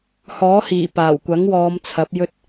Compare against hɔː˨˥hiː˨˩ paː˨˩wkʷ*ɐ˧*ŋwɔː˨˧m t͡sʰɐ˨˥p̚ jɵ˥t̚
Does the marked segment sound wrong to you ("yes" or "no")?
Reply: yes